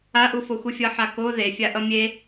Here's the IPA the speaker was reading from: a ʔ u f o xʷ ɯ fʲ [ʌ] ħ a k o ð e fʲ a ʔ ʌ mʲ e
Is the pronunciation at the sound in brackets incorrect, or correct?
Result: correct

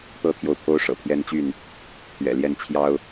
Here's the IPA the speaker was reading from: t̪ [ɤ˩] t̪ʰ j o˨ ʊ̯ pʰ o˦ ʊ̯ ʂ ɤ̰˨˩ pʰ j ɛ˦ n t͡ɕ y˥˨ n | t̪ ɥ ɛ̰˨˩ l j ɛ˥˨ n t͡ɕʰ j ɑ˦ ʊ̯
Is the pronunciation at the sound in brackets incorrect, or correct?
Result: incorrect: ɤ˦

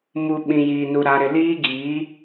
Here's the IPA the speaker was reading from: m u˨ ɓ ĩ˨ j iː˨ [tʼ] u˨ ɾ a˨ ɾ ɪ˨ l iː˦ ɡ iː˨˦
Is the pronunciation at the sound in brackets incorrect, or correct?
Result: incorrect: n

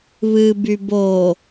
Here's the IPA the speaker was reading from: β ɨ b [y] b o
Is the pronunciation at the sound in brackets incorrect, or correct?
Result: correct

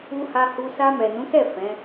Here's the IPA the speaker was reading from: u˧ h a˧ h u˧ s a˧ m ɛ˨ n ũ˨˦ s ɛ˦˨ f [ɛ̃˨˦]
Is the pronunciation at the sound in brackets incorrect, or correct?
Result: correct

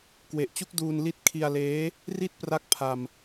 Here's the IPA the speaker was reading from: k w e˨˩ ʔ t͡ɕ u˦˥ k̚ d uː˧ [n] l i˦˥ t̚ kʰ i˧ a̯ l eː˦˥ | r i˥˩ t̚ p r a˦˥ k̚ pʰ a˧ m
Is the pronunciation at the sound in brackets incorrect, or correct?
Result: correct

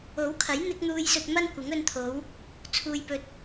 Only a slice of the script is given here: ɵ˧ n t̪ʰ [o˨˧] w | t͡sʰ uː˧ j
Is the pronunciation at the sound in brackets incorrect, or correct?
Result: correct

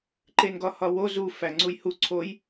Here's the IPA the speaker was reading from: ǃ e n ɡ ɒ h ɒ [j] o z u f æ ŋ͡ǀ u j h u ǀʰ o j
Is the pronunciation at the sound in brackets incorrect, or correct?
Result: incorrect: w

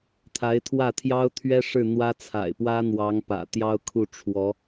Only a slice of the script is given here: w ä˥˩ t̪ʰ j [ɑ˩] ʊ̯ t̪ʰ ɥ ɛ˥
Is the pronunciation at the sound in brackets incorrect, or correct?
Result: incorrect: ɑ˥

